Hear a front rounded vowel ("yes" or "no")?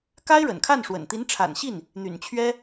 yes